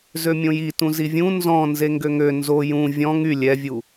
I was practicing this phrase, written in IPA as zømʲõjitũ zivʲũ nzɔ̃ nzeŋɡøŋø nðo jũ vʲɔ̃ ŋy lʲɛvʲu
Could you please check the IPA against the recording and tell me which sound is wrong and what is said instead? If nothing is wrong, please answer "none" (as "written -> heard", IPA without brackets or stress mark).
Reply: ð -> z